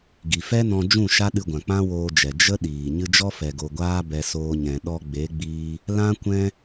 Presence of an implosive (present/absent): present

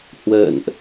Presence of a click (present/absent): absent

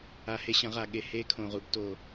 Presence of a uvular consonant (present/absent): present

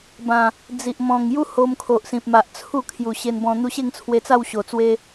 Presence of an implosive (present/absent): absent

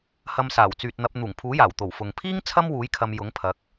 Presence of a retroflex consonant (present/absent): absent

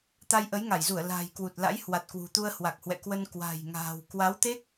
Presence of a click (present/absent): absent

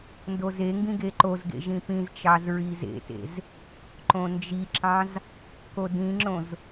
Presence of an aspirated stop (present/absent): absent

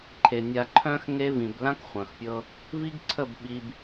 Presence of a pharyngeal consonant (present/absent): absent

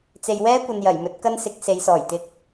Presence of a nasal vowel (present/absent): absent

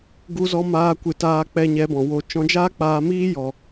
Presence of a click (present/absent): absent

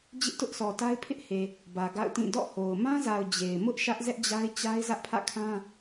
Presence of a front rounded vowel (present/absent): absent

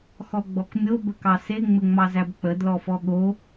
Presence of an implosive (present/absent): present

